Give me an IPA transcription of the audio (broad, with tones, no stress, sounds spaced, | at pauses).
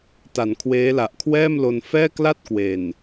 t a˩˦ n kʰ w eː˦˥ l a˨˩ ʔ kʰ w ɛː˥˩ m l o˧ n f ɛː˥˩ k l a˥˩ t̚ k w e˨˩ n